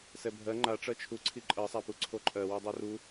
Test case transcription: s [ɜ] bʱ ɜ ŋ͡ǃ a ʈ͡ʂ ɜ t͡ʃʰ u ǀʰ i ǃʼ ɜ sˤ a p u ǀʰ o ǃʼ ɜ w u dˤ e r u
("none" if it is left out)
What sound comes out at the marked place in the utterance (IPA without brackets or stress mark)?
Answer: ɛ